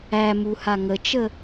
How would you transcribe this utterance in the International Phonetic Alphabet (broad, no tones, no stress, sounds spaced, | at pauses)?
æ m u h a ŋ ə t͡ʃ ə